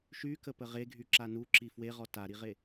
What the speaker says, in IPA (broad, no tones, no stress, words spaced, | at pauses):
ʃykəpə ʁeɡʱyǁa nuǁi fweʁɔ taɾiʁe